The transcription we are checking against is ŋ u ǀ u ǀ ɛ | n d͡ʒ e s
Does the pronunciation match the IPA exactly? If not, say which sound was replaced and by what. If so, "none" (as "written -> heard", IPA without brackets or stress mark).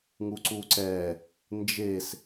none